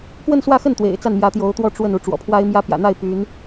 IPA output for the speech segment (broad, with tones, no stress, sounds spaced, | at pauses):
k w ə˥˧ n s w ä˥˧ x ə˥˩ n t̪ w ḛ˨˩ ɪ̯ t͡s a˥˩ n m j ä˧˥ t̪ j o˧˥ ʊ̯ t̪ w ɔ˥ ʈ͡ʂ w ə˥˩ n u˧˥ ʈ͡ʂ w ɔ̰˨˩ pʰ w a˥ ɪ̯ m j ä˥ p j ä̰˨˩ n̪ a˥˩ ɪ̯ p y˧˥ n